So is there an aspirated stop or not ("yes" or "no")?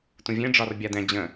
no